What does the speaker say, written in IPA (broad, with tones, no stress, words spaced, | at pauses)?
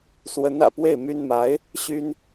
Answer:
swə˧˥nä̰˨˩ pwe˥˩ɪ̯my˥n ma˧˥ɪ̯ | ɕy˥n